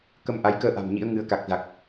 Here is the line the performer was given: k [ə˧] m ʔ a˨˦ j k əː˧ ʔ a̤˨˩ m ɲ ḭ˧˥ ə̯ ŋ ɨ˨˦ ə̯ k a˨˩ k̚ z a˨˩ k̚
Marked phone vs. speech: correct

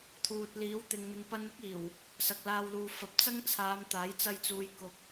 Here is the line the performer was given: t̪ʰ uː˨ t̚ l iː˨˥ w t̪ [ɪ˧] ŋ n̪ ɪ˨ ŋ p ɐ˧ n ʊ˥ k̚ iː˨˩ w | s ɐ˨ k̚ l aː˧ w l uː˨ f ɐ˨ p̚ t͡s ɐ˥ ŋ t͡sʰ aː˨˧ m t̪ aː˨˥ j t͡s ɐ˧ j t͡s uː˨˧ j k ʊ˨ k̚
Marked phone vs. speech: incorrect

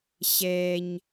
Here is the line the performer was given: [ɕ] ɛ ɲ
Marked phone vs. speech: correct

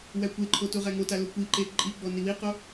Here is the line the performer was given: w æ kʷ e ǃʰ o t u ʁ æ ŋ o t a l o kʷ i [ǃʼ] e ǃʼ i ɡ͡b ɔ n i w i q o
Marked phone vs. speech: incorrect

